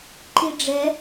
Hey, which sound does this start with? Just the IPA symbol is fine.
ǃ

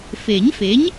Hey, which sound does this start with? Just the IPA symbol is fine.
f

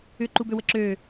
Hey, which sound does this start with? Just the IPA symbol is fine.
ʏ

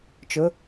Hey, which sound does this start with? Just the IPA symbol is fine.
t͡ʃ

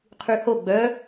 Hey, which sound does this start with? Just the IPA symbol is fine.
qʰ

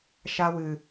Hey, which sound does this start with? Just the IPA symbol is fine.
ʃ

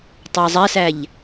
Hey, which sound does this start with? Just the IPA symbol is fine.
tˤ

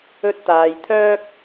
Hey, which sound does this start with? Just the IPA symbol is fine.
ɵ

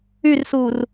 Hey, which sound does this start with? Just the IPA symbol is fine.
y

